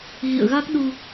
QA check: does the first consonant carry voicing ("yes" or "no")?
yes